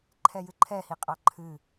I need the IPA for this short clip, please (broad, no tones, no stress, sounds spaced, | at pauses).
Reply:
ǃʰ ɛ j ɨ ǃʰ ɛ h i qʼ ɑ ǃʰ ɨ